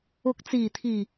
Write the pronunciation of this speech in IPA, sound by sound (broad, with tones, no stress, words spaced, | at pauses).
ʊ˨˥k̚t͡siː˨˩t̪ʰiː˨˩